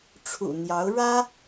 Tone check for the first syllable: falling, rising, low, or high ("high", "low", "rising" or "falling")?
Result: low